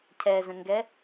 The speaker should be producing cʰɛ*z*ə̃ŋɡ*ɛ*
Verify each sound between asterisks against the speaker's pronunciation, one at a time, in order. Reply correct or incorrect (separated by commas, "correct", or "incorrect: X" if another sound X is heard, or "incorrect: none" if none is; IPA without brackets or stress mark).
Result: correct, correct